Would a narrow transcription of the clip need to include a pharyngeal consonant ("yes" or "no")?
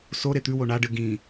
no